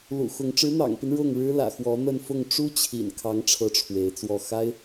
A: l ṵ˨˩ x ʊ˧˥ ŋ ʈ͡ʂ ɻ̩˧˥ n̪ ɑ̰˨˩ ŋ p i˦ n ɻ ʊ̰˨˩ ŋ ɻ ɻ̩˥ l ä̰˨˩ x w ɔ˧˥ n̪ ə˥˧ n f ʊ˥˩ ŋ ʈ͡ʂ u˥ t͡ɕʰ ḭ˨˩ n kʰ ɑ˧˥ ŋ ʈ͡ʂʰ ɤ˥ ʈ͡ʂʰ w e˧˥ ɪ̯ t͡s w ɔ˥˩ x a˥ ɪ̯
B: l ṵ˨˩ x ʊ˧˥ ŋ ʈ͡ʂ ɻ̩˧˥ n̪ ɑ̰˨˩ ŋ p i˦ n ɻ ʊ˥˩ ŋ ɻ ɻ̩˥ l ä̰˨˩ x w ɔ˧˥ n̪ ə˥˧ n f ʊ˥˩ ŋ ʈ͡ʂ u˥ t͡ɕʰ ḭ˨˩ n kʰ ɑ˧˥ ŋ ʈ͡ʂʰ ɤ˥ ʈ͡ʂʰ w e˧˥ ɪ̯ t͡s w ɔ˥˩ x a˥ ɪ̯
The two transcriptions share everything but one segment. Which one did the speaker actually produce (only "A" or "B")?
B